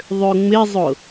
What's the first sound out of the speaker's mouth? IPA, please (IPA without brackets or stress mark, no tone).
ðˤ